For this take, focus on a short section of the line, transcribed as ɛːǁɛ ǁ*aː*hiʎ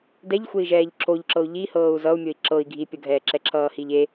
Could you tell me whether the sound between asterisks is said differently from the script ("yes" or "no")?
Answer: yes